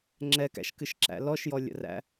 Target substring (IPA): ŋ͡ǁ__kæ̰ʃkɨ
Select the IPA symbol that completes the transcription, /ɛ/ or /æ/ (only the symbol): ɛ